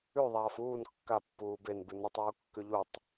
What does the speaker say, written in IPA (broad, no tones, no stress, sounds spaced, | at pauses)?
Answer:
ʉ ðˤ aː f uː n kː a pː uː b e n b ʉ n u tˤ uː kː ʉ ʎ u tˤ